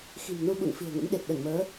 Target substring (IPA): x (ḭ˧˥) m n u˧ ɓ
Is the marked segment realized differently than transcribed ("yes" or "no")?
yes